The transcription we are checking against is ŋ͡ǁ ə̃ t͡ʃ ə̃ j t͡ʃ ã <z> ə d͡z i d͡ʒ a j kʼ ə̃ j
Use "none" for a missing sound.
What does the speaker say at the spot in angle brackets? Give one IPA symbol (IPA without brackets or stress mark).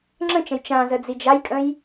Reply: z